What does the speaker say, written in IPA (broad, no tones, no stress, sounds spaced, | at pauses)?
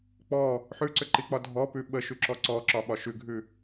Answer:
k͡p ɔ | ħ ʉ ǀ ʏ ǃ i k͡p ɒ dʱ ɔ p ʉ ɓ ə ʃ ʉ ǁ ɔ ǀ ɔ ǁ ɒ ɓ ɒ ʃ ʉ ɡʱ ʉ